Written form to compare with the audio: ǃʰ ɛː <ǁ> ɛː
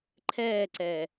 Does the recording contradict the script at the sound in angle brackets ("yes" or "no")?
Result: yes